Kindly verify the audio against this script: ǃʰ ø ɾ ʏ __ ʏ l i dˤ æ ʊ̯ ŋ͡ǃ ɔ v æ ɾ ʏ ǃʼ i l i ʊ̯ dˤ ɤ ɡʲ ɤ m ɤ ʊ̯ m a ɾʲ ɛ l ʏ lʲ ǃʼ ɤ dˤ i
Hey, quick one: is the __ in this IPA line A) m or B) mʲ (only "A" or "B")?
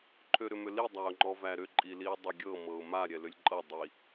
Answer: A